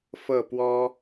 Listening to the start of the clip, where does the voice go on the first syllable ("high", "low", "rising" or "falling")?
falling